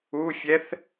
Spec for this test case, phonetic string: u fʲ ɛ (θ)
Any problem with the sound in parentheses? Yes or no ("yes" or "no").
no